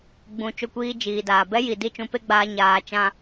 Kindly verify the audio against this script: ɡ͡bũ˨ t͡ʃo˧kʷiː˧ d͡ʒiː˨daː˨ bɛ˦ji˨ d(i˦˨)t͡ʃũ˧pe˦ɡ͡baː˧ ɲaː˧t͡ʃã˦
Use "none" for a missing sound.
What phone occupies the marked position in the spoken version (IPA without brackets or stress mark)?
i˦˨